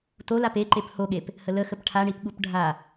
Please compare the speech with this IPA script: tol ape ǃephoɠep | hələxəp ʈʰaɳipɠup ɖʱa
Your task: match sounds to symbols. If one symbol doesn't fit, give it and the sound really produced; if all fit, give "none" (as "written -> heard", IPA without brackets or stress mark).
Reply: none